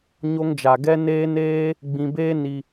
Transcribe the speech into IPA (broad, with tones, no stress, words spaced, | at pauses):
ɲo˧ŋd͡ʒa˨ ɡɛ˦neː˦ neː˦ | ɡ͡bĩ˧beː˦ ni˧